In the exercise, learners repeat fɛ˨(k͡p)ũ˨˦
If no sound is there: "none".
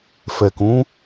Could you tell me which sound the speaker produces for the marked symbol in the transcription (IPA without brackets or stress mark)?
k